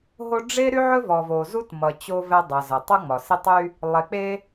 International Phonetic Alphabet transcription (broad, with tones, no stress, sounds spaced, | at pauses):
ɦ o˦ ɖ͡ʐ e˦ ɾ y˦ ʕ ɵ˦ v ɔ˨ v o˨ z u˦ t m ʌ˨ t͡ɕ o˦ v ɛ˦ dˤ ʌ˨ z ʌ˨ tˤ ʌ˦ ŋ͡m ɒ˨ s e˦ tˤ y˦ | lˠ e˨ k͡p e˦